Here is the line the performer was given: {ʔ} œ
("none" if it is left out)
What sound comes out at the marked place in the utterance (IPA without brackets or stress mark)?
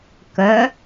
k